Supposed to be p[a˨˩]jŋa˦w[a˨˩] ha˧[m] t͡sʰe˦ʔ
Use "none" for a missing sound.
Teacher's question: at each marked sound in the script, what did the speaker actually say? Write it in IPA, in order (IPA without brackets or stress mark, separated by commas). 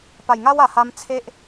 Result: a˨˩, a˨˩, m